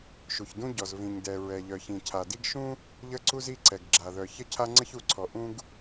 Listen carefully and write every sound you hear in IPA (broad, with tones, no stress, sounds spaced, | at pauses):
ʃ u˩ ç d ũ˥ ɟ ɔ˩ z v ĩ˩ ɲ d ɛ˩ ɹ ɛ˩ ʎ œ˩ ç ĩ˩ cʰ a˩ d i˥ ɡ ʃ ũ˥ | ʎ ə˥ ǀ u˥ z i˥ ǀ ɛ˩ ɡ ɡ͡ǁ a˩ ð œ˩ ç ə˥ cʰ a˥ ŋ͡ǀ ə˥ ç u˩ ǀʰ ɔ˩ ʔ ũ˥ ɡ